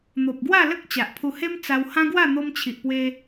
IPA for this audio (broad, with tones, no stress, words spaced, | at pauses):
n̪o˨p̚ɡwa˥˧lə˦k̚ t͡ɕa˨ʔpʰu˧he˦m t͡sa˧whã˦ɡwa˥˧ n̪o˧mt͡ɕʰi˨ʔpwe˧